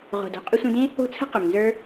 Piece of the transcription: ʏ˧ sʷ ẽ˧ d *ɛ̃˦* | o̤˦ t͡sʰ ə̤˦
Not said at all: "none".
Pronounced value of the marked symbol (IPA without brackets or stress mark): ẽ˦